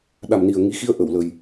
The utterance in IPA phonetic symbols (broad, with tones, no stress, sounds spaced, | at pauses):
ɗ a˨˩ m n i˨˩ ə̯ ŋ i˨˦ x i˧ ə̯ ʔ ə˧˩ w l ə˨˩ j